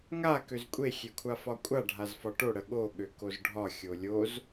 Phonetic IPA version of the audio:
ŋ a k ø z kʷʼ e xʲ e kʷʰ a f ɒ kʷʼ a ɖʱ a z f ɒ ʈ o ɽ ə ɠ o ɠ ø k o z ɖʱ ɒ xʲ o lʲ o z

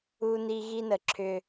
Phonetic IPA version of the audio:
u˦ n i˦ ɣ i˦ n ə˨ ǁʰ ʏ˨

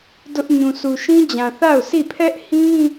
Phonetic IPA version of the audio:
d ʊ˦ ʔ ɲ ũ˨ s u˨ ʃ ĩ˦ d͡ʑ ã˨ θ a˦˨ ʊ̯ s i˦˨ pʰ ɛ˦ ʔ h ĩ˦

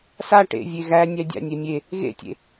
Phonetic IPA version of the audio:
s a ʈ ḛ vʲ e ɣ æ nʲ æ dʲ a̰ nʲ ɛ mʲ e | ɣ ḛ tʲ ḛ

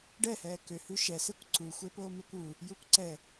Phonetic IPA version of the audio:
ɖ ɛ h ɛː k ø h ʉ ʃ ɛ s e kʷ ǀ u xʷ e p oː m e kʷ u | j u kʷ ǀ ɛ

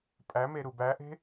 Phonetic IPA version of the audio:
pʼ æ m e ɾ u b æ ʔ e̤

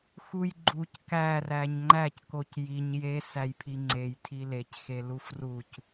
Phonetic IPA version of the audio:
x u j ɡ͡ǃ u c k æ r æ ɲ ŋ͡ǃ æ c k o c j i ɲ j e s æ j pʰ i ŋ͡ǀ e j tʰ i l e c x e l u f r u c

